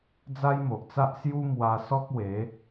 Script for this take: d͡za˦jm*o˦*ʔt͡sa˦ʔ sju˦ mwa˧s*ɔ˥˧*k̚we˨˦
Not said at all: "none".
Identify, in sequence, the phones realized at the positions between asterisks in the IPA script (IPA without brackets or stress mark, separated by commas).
o˨, ɔ˦